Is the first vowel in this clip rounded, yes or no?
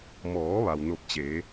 yes